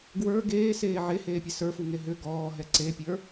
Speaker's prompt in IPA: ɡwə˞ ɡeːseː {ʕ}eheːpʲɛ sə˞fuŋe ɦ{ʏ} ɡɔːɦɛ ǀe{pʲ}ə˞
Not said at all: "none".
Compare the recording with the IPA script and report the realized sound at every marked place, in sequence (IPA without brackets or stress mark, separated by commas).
ʕ, ʏ, pʲ